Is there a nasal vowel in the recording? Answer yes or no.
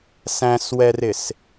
yes